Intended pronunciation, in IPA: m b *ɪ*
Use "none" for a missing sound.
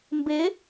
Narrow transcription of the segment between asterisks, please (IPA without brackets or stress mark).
ɪ